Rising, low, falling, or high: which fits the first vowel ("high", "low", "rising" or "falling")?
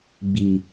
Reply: low